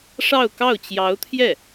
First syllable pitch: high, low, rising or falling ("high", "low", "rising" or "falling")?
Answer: falling